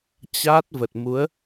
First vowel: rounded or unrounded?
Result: unrounded